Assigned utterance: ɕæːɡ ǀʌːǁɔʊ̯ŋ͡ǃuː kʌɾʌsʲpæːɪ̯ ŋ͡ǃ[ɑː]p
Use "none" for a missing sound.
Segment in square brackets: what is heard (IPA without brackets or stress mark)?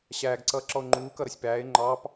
ɑː